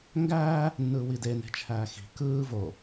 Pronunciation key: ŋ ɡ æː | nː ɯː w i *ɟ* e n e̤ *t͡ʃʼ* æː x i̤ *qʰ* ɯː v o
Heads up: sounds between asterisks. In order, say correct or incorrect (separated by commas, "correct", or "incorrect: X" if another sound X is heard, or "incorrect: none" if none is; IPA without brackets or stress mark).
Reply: incorrect: d, incorrect: t͡ʃʰ, incorrect: k